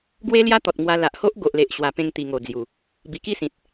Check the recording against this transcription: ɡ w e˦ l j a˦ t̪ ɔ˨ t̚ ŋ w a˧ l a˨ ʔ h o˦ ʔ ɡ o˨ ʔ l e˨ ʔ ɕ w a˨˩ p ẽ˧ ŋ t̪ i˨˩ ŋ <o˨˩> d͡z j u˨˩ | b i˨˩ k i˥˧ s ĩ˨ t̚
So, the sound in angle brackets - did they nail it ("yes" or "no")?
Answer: yes